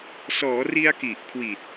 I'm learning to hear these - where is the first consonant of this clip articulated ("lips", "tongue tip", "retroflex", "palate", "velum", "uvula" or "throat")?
tongue tip